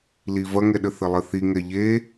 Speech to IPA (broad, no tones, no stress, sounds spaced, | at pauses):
l i v ɐ ŋ ɛ ɗ ə θ ə lˠ ə θ i ŋ ɛ ʎ e